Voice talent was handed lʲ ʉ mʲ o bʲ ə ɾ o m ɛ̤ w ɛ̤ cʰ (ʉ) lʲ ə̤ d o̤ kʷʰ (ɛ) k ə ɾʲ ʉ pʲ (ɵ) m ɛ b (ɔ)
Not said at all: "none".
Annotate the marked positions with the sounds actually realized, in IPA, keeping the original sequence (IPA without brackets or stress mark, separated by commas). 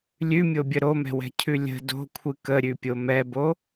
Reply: ʉ, ɨ, o, o